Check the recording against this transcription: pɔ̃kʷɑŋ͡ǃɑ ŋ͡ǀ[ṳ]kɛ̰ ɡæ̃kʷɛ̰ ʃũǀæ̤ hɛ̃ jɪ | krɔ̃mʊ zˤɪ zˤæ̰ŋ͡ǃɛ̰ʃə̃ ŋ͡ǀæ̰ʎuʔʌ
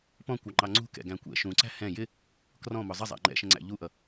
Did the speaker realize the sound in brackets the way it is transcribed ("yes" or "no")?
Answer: yes